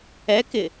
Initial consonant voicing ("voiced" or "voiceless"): voiceless